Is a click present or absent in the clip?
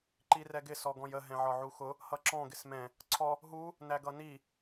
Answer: present